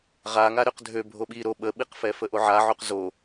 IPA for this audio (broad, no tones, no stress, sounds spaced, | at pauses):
ʁ a ŋ a ɾ ø q dʱ ø bʱ o ɓ i ɾ o ɓ ə ɓ i q f ɛ f ə ʔ o ʕ a ʕ o q z o